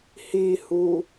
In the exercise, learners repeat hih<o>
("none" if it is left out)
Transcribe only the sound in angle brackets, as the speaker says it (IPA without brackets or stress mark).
u